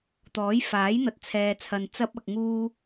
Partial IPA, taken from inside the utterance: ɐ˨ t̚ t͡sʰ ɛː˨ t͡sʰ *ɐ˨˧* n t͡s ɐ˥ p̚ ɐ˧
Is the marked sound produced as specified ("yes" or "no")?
no